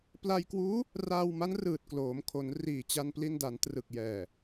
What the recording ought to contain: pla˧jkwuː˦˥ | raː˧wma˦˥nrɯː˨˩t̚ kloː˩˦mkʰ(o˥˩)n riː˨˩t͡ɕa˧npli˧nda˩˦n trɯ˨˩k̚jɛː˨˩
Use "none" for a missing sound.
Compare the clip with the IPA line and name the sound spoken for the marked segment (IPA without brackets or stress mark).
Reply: o˩˦